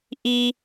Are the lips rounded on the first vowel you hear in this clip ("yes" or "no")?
no